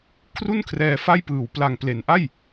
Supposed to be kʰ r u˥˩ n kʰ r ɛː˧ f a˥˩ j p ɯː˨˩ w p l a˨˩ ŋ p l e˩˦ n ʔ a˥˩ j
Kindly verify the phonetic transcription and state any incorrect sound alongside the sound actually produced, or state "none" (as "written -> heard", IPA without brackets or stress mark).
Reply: none